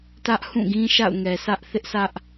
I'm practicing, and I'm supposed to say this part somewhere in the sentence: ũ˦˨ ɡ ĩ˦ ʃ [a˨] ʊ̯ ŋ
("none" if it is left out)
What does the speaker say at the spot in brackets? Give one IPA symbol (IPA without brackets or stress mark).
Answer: a̰˦˨